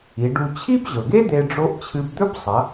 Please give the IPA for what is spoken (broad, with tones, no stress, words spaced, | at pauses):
i˩˧ɖu˧ t͡ɕʰi˥bʑɵ˩ɡe˥ d̪e˧ɖ͡ʐo˧˥ʔ t͡ɕʰɨ˧bd̪ɵ˥b sˤɐ˩˧